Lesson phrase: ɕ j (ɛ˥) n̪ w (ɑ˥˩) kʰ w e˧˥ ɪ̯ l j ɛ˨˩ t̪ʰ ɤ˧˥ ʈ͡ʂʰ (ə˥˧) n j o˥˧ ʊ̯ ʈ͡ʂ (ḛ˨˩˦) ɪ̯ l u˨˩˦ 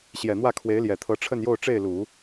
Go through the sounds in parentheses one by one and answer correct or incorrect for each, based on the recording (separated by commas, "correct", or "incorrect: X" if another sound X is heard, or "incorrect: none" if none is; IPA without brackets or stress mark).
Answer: incorrect: ɛ˨˩, incorrect: ä˥˩, correct, incorrect: e˥˩